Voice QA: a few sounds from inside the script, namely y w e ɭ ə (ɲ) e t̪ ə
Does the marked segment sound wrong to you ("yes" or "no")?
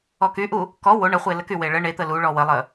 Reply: yes